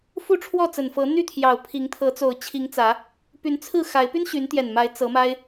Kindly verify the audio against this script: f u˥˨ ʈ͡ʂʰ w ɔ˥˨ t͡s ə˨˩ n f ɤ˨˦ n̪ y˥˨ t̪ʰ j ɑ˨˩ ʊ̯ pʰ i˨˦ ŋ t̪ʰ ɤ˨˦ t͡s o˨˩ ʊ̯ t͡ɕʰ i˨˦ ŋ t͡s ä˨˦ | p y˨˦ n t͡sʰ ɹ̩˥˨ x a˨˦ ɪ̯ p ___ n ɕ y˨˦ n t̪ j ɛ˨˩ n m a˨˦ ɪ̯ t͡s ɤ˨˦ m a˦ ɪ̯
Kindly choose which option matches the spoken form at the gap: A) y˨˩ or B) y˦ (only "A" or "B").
B